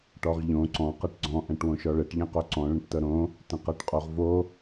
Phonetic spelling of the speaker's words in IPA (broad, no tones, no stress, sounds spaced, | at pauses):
ʈ ɔ ʁ ʎ õ ǀ ɔ̃ q ɤ ʈ ɡ͡ǀ ɔ̃ ʔ ɛ̃ ʈ w õ ʃ ɔ ɭ ɘ ʈ ʎ ɛ̃ q o ǀ ɔ̃ ɭ ə̃ ʈ t ɤ ɾ õ | t ə̃ q ɤ ʈ qʼ o ʁ v o